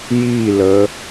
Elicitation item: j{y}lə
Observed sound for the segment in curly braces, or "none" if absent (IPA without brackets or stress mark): i